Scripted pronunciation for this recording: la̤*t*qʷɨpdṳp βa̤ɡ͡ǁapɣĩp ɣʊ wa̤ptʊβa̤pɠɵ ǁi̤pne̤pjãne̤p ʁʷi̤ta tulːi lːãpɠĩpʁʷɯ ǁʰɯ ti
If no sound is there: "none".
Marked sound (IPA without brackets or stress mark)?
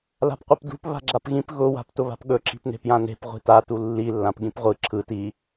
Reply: p